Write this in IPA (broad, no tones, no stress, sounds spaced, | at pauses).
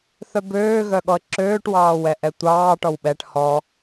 θ œ b øː ɣ œ ɠ ɔ ə̯ ǁ øː ʈ w ɑː w ɛ ʔ ɛ tʷ ɑː ʈ ɔ w ɓ ɛ ʈ h ɔ